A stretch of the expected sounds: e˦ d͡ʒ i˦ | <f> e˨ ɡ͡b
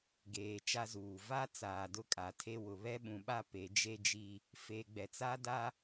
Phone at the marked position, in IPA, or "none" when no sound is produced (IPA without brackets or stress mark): f